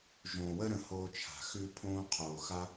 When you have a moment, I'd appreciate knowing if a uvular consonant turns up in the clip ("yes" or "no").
yes